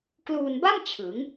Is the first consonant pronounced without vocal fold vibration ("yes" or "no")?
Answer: yes